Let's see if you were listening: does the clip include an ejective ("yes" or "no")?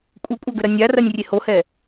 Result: yes